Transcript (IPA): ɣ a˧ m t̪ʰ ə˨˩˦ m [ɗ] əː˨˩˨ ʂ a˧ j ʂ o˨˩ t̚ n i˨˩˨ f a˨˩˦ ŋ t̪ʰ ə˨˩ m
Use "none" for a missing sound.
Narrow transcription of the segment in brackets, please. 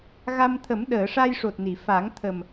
ɗ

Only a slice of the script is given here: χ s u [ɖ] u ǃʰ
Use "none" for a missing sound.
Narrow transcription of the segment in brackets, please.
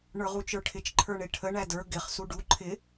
ɖ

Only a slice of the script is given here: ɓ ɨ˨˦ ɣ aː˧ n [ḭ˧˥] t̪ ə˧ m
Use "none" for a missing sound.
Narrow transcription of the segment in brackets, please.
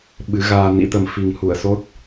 ḭ˧˥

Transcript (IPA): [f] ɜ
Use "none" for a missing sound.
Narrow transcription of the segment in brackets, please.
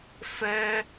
f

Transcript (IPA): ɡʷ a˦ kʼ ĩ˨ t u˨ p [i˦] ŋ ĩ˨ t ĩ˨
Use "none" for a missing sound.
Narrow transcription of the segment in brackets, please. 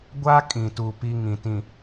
i˦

